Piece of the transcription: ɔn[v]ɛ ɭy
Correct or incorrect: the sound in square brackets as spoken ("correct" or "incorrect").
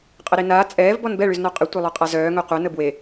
incorrect